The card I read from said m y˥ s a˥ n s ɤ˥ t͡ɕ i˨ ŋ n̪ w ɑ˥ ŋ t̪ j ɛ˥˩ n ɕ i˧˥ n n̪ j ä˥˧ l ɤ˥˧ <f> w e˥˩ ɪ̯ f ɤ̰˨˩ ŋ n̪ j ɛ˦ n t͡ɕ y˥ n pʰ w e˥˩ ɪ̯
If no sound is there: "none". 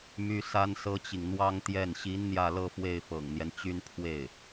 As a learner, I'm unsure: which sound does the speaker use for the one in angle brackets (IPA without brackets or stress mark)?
f